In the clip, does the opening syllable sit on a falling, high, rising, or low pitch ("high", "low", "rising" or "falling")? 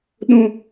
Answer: high